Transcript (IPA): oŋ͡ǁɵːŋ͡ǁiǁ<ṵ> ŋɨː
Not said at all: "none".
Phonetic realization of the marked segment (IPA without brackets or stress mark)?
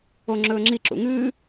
ṵ